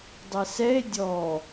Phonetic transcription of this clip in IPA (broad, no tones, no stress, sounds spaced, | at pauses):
dˤ ɛ s ɛ e̯ dʲ ɔ